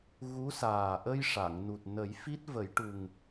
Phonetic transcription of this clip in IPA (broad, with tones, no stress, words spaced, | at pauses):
ɣu˧˥saː˨˩ ʔə˧jʂa˨˩˨ŋnu˨˩t̚ nə˨˩˦jfi˦˥t̚ və˨˩˦jʈu˨˩ŋ